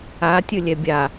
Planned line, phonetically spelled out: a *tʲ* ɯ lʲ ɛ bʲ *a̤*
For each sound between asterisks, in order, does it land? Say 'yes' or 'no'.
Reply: yes, no

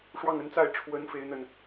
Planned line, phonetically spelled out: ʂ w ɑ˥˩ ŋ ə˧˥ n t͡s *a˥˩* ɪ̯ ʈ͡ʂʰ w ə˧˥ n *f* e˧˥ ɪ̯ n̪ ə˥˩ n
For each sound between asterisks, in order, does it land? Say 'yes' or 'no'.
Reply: yes, yes

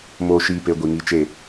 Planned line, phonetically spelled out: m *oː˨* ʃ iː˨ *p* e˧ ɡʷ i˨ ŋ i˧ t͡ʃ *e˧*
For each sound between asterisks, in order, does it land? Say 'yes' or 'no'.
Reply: yes, yes, no

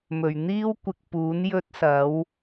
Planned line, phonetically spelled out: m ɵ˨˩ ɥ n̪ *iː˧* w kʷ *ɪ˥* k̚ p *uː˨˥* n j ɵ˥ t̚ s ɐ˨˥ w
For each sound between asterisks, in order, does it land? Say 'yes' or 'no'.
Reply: no, no, yes

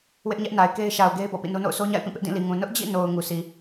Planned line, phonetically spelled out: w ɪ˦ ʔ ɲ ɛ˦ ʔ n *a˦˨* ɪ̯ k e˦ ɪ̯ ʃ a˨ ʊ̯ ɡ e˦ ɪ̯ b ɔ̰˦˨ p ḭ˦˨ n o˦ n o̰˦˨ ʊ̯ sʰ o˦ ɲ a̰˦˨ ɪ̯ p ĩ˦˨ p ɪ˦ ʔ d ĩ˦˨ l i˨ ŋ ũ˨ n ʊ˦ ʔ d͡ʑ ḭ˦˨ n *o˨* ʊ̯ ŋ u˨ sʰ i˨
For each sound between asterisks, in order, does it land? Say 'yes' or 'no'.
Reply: no, yes

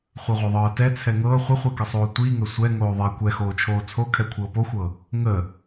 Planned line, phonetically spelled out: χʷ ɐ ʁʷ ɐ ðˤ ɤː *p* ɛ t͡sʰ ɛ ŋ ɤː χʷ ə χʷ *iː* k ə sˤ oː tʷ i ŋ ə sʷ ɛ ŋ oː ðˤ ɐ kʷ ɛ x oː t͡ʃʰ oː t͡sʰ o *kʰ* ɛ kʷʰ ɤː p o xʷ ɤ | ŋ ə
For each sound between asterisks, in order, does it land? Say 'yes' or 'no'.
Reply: no, no, yes

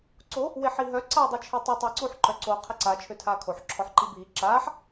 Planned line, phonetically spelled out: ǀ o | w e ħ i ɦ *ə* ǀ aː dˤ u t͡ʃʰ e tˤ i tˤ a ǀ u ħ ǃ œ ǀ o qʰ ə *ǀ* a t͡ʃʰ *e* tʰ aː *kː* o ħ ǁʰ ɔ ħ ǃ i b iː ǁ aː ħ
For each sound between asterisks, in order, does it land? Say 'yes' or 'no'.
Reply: no, yes, no, no

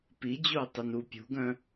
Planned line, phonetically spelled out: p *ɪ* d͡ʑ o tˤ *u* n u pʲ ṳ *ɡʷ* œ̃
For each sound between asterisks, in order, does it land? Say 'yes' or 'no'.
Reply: no, no, no

